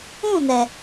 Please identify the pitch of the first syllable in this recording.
falling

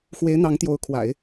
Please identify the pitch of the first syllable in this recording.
rising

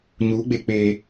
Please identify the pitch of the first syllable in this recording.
rising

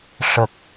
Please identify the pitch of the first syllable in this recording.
low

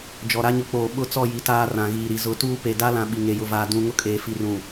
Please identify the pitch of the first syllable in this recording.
low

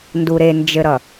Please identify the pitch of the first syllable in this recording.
low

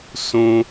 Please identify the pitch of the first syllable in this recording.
high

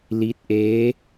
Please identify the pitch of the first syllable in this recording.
rising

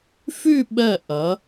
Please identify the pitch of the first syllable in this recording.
falling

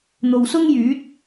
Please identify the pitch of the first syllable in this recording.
low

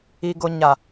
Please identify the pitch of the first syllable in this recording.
low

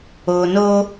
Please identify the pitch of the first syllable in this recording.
low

